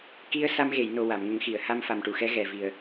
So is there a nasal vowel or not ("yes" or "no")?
no